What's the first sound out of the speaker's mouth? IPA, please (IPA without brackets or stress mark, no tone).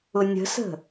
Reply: ʊ